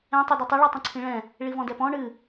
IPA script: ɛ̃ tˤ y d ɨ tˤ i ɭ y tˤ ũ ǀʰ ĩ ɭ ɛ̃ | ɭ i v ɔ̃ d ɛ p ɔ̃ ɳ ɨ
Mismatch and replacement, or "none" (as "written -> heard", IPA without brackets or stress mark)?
none